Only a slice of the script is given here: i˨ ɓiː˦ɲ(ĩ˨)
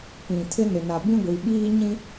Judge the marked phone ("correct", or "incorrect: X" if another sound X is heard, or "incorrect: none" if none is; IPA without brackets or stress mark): incorrect: ĩ˦